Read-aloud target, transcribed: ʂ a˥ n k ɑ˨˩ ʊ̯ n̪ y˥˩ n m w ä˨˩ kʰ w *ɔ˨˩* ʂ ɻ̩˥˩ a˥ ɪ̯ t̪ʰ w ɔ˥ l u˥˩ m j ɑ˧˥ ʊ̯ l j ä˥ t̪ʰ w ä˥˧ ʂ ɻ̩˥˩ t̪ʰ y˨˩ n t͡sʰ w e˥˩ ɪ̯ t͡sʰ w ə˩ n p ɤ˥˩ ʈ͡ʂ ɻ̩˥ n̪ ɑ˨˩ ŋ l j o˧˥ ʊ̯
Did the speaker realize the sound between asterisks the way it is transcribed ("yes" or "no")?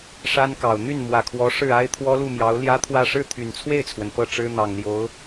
no